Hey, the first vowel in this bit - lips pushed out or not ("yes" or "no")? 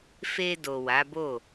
no